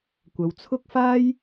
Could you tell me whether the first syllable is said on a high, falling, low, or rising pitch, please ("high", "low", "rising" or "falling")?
low